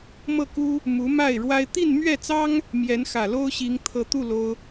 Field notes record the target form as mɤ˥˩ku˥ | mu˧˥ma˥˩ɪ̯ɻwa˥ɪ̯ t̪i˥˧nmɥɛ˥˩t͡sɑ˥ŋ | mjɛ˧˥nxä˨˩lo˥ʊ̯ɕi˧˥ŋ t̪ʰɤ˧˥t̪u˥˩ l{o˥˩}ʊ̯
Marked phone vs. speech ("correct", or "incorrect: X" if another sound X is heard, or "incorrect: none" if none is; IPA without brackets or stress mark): incorrect: o˥